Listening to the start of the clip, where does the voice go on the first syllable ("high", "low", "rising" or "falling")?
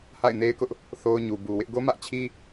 falling